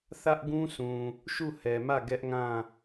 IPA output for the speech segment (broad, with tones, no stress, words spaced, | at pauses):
θä˦ʔɡũ˦sũ˨ | ʃu˦˨hɛ˨mä˦˨ ɡɛ˦ʔŋã˦˨